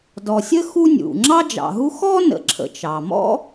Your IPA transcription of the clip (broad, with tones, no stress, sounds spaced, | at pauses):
d ɔ˩ sʲ ə˥ x u˦ nʲ ṵ˩ ŋ͡ǁ ɑ˥ d͡ʒ ɑ̰˨ ɦ u˥ x ɔ˥ n ə̰˨ ǁʰ ə̰˨ t͡ʃ ɑ˩ m ɔ̰˥